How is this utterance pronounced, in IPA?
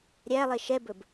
ɾʲ æ lˠ e ʃ ɛ b ɵ b

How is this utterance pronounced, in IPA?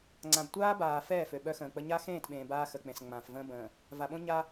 ŋ͡ǀ ã˨ b tʷ aː˦ b aː˨ f ɛː˦˨ f ø˨ ɓ œ˦ x ə̃ː˨ k͡p ə˦ ɲ a˦ x ẽː˦˨ t ɓ ẽː˨ b aː˦ x ə˨ k͡p ẽ˨ s ŋ͡m ã˨ f v ə̃ː˦ b ə̃ː˨ | v a˨ ɓ õ˦ ɲ a˦

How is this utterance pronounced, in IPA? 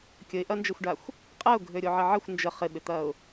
kʲ ə ɪ̯ ʔ ɐ n d͡ʒ ə xʷ ɖ a xʷ | qʼ ɐ ʊ̯ ɡʱ ø ɾʲ o ʕ ɪ ʕ ə xʷ n d͡ʒ ə χ ɪ ɓ ɪ t̪ ɐ ʊ̯

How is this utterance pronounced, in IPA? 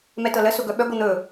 m ɛ t ɤ l ə s ʊ ɡ œ ɓ œ ɡʷ ɤ n̪ ɵ

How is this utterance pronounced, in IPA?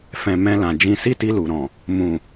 f ɛ̃˨ m ɛ̃˧ l ã˨ d͡ʒ ĩ˨ s i˧ t i˧ l u˨ ɾ ɔ̃˨ | m ũ˨

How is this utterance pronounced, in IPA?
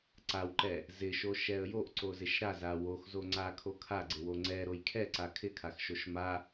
ǀ a w ǃ ɛ | z ɪ ʃ o ʃ ɛ ə̯ j o ʔ ǀ o z ɪ ʃ ɾ a z a w o x z o ŋ͡ǀ a kʰ o kʰ a ɡ͡ǀ ɪ w o ŋ͡ǀ ɛ ɾ o j kʰ ɛ ǀ a kʰ ɪ kʰ a x ʃ o ʃ m a

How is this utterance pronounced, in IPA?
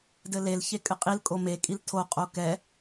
d ɘ l e l ç e kʼ ɘ qʼ i l kʼ o m e kʼ i l tʰ o qʼ o k ɛ

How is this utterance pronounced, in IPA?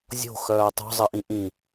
zʲ o̤ x œː tˤ o̤ zˤ ɘ ʔ ĩ ʔ ĩ

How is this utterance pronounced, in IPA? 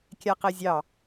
kʲ a q e zʲ ɑ

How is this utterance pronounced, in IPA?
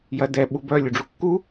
j ɐ d ɛ ɓ u b œ lʲ u ɖ͡ʐ u kː u

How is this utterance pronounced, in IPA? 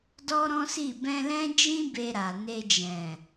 d ɔ˦ ɾ ɔ̃˦ s i˦˨ b ɛ̃˧ l ɛ̃˦ d͡ʒ ĩ˦ b e˧ ɾ a˨ n e˧ d͡ʒ ɛ̃˨

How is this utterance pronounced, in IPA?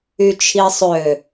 y t͡ʃʰ i sˤ ø

